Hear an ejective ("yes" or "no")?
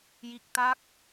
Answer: no